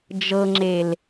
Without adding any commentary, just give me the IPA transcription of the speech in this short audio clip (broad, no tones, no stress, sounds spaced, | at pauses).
d͡ʒ ɤ ŋ͡ǁ e l